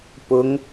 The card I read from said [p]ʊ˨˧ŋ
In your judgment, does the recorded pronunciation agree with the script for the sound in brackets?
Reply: yes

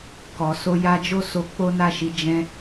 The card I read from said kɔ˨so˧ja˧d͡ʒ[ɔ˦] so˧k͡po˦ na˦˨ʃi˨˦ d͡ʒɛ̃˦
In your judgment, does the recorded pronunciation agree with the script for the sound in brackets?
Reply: no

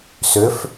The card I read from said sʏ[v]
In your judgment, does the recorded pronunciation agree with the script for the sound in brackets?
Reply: no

